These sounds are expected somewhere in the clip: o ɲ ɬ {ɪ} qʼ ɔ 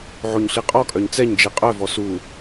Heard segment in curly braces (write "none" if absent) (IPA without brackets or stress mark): i